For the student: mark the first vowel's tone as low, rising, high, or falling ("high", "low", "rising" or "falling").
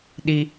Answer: high